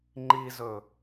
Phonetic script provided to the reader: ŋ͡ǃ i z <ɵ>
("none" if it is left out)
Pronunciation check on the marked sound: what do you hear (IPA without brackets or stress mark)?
ɵ